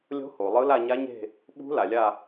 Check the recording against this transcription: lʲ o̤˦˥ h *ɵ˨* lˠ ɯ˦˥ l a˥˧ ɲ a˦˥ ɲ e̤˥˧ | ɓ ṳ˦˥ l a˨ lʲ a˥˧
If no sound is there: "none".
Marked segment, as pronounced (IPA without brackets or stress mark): o˨